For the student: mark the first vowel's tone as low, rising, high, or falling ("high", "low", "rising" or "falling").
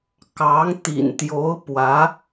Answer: rising